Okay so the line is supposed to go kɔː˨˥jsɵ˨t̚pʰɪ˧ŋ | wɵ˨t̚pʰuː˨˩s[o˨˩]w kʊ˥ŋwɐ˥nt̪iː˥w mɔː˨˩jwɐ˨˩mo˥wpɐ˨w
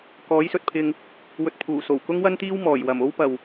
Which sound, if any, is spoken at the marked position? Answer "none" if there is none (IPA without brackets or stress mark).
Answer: o˨˩